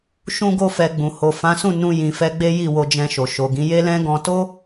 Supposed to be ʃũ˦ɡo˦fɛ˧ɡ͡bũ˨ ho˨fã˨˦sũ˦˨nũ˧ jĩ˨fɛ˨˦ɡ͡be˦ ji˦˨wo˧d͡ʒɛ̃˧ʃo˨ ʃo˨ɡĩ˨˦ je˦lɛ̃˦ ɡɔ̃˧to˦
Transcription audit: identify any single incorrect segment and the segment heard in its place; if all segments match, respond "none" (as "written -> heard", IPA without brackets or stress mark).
none